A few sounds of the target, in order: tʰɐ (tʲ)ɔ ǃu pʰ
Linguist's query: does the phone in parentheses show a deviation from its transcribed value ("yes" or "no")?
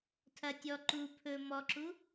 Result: no